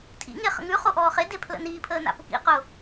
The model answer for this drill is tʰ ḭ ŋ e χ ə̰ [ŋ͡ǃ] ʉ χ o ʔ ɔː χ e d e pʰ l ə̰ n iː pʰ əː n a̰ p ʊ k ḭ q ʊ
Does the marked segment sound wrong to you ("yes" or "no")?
yes